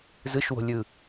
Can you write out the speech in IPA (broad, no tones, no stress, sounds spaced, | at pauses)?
z ɯ ʃ w o̤ lʲ ɯ